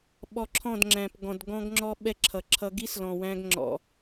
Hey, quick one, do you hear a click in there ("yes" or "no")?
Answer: yes